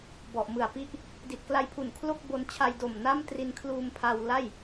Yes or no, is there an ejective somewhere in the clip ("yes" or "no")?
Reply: no